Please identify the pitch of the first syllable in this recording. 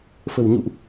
low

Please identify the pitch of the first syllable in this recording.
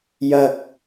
low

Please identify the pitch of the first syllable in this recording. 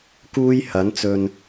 high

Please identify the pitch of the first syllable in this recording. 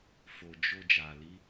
low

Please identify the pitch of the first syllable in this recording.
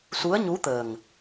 rising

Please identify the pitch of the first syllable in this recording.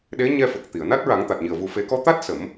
rising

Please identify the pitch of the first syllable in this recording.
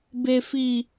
high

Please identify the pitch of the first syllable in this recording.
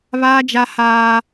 high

